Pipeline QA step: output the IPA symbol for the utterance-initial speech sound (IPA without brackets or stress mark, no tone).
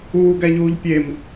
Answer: uː